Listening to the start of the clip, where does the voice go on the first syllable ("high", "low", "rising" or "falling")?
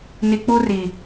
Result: low